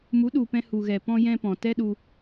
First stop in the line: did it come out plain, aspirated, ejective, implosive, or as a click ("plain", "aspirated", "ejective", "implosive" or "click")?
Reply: implosive